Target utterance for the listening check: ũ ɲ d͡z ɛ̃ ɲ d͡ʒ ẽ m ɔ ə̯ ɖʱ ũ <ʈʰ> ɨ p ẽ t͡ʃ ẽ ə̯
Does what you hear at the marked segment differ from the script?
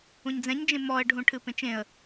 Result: no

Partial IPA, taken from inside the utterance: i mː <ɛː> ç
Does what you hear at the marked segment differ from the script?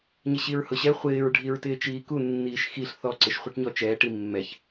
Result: yes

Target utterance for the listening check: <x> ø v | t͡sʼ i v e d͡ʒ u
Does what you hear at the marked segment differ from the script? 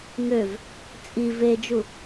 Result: yes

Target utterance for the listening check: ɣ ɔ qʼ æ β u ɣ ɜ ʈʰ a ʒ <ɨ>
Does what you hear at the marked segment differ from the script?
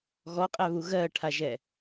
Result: yes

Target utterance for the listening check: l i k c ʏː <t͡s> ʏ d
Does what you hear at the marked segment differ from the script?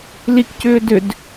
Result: yes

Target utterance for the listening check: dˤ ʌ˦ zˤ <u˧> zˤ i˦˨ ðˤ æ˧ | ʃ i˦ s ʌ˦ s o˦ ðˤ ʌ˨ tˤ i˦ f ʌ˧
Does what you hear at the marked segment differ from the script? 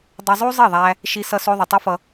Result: yes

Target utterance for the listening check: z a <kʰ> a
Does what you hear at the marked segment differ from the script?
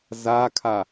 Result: no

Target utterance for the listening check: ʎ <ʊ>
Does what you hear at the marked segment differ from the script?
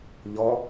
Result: yes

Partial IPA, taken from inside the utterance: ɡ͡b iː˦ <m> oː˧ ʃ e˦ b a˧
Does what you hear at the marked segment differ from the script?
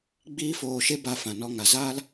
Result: yes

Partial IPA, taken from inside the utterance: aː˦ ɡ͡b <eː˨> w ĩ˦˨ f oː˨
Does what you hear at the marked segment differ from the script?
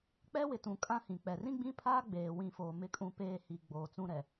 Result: no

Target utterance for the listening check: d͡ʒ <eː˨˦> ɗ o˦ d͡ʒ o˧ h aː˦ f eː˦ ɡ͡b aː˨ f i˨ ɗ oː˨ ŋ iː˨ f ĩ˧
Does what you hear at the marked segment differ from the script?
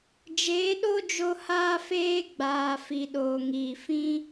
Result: no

